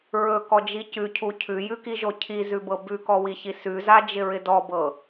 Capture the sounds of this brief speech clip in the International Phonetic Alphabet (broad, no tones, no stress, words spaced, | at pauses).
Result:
ɹɵkɔd͡ʒi cʉcʰu cʰʉjʉkiʒo cʰizʉbɤ bʉkɔwiçi sʉzad͡ʒɪɹɪ dɔbɤ